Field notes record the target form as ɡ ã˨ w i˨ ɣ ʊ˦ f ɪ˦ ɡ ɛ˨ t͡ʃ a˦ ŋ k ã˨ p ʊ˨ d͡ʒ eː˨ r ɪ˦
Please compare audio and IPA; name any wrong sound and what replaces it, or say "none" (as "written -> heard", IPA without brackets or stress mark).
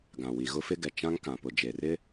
a˦ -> ã˦